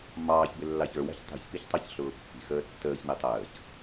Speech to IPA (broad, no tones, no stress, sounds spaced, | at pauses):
m ɑː ç b ɪ lː ɑ ç ə˞ w æ̤ ç tˤ i̤ ç p i ç tˤ ɑ ç ɬ ʊː pː i̤ x əː tː əː ç n i tˤ əː ç